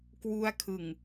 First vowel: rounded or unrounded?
rounded